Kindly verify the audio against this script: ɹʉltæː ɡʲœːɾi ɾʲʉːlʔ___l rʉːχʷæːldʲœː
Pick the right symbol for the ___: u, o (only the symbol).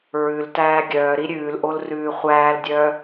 o